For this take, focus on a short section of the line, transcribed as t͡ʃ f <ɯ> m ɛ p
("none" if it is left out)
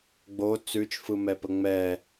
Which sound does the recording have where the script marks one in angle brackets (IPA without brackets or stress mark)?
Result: ɯ